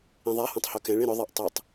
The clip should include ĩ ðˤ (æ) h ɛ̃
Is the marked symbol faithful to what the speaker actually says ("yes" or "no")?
no